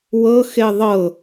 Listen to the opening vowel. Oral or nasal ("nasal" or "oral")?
oral